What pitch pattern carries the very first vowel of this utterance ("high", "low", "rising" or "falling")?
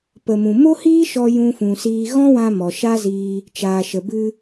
low